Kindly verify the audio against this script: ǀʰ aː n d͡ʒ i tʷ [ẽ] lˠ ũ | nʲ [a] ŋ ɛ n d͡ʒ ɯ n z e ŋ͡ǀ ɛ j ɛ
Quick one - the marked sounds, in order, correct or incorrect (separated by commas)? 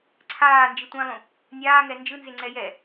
correct, incorrect